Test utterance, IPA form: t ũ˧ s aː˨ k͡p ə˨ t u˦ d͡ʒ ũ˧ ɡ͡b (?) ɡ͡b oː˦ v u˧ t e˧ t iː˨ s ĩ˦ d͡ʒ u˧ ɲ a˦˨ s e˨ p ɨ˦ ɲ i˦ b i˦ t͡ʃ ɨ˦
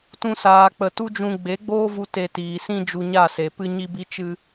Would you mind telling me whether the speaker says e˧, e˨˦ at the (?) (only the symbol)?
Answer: e˨˦